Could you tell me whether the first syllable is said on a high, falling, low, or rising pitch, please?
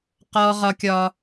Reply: high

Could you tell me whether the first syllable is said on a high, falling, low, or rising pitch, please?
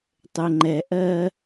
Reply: low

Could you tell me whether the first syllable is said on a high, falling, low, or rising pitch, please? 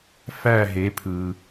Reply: falling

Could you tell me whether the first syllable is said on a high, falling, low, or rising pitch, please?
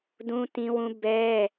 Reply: high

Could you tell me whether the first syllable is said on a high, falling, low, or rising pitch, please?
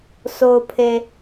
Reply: low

